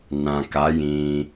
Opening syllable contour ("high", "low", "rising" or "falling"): low